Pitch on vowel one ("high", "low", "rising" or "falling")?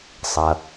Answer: low